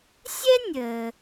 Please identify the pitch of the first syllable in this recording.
high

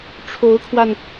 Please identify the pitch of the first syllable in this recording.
rising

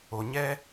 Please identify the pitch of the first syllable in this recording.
low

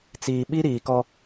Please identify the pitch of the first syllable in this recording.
low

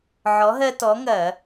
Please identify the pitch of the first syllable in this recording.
rising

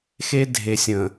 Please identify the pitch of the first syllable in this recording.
high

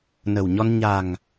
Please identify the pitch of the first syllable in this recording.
low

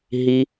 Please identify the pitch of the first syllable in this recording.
high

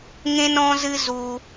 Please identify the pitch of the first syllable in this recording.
high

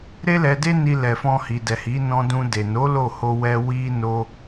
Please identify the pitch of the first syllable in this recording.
high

